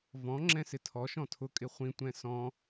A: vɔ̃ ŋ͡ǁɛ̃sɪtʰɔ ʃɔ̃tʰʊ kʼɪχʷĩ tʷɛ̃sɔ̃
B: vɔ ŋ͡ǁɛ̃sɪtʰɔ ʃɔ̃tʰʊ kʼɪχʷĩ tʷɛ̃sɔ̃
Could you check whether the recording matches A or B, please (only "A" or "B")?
A